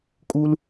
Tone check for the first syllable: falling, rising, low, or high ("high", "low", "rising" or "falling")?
high